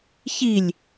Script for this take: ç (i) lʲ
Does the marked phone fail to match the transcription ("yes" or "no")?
no